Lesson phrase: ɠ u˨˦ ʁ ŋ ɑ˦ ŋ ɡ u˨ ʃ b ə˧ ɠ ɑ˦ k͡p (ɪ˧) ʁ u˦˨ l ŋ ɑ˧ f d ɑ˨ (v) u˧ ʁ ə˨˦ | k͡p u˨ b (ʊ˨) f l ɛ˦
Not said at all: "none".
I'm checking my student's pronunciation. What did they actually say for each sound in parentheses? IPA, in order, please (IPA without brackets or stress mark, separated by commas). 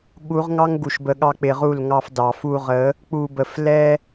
ɪ˧, f, ə˨